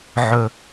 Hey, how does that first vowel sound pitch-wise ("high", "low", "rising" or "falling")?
low